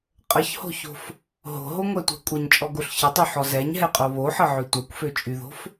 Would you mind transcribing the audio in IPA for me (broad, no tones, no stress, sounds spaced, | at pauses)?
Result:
qʼ ə ç h o̤ ç o̤ f | ɦ o̤ ɦ o ŋʷ ɛ tʷ ɛ̤ kʷʼ ə ɲ t͡ʃʼ ɔ ɡ o ɬ ç ə tˤ y ħ ɔ z ɛ ɲ ɦ ɛ qʼ o β o ħ ə ʕ ø tʷ ɛ kʷ f ø t͡ʃʼ y ð o̤ f